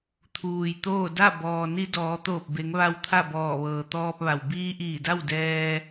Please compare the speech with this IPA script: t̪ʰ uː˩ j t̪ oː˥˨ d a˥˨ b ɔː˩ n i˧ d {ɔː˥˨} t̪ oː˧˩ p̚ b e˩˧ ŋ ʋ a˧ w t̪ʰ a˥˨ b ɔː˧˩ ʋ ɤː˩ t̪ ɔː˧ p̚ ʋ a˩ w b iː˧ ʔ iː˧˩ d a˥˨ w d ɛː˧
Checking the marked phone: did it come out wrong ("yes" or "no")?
yes